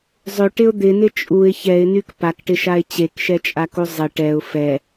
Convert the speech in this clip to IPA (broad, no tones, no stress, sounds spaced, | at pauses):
zˤ ø ʈ ɪ ʊ̯ d̪ ɪ n ɪ t͡ʃʼ u ɪ̯ ç ɛ ɪ̯ n y k p a k ʈ ɪ ʃ a ɪ̯ t͡ɕ e k ʃ ɛ t͡ʃʼ a k u zˤ ɪ ʈ ɛ ʊ̯ f ɛ